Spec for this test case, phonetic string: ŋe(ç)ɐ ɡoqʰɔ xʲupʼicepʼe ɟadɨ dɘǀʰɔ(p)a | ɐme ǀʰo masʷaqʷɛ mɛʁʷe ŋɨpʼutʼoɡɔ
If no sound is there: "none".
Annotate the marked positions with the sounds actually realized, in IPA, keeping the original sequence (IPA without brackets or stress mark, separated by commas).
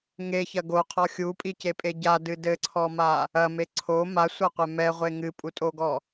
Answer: ç, m